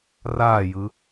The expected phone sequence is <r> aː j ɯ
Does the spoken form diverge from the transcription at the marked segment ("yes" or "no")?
no